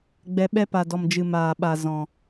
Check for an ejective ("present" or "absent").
absent